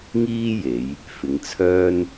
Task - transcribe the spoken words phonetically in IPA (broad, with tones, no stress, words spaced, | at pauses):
ŋiː˥je˨˧j | fɪ˨˧ŋt͡sʰœː˥n